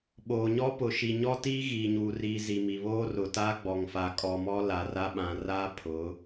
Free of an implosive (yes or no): no